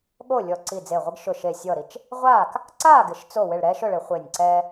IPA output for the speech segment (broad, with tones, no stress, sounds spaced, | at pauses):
ɠ o˥˩ lʲ ɔ˧˩ ǀ i˧˩ d͡z e˧˩ ʁʷ ɪ˦ ɡ ʃ ʊ˧˩ ʃ e˧˩ sʲ ɔ˥˩ ɾ i˥˩ t͡ʃ | ʁʷ aː˥˩ k | ǀ aː˥˩ ɡ ɪ˨˩˦ ʃ t͡s o˥˩ w ɪ˧˩ ɭ ɾ ɛː˦ ʃ ʊ˥˩ ɭ ɪ˨˩˦ χʷ ɪː˧˩ nʲ ǀ ɛː˦